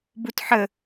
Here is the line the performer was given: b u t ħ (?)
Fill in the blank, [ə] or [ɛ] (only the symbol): ə